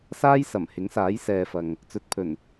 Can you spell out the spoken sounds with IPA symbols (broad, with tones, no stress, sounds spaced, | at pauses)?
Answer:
s aː˥ j s ɐ˨˩ m h ɪ˨˥ ŋ s aː˨˥ j s ɛː˨ f ɐ˨ ŋ | t͡s ɵ˨ t̚ pʰ ɵ˨˩ n